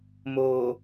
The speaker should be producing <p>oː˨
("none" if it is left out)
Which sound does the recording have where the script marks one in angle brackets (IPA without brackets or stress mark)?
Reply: m